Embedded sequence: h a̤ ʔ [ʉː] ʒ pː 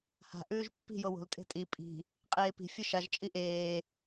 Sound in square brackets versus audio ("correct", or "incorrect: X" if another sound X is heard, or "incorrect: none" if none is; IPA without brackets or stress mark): correct